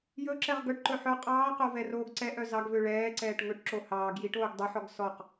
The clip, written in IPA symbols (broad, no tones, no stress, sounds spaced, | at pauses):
j ɵ ǁ ɛ ʁ ɡ œ ʈ ǃ ɵ ħ œ qʼ ɑː q o v ɛ r oː ɡ ǀ ɛ ʔ œ z ɑ ɡ v ø ɭ ɛː ǀ ɛː ʈ ŋ ɵ ʈ ǁ o h ɑː ɡ j i ʈ oː ɡ dˤ e ħ ɔ ɡ s ɔ q